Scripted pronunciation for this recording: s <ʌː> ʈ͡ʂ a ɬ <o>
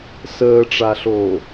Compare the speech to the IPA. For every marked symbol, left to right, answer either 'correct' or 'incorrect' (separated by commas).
incorrect, incorrect